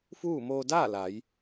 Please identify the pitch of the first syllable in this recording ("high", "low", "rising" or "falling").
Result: falling